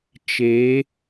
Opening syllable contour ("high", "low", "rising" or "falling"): rising